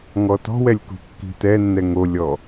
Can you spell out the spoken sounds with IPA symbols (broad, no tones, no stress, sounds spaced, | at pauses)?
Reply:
ŋ ɔ t ɔ̤ w ɛ lʲ k ṳ kː i̤ t ɛ nː ɛ ŋ o lʲ ɔ